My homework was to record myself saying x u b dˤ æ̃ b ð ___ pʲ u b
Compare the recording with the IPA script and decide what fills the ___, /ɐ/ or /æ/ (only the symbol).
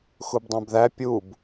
æ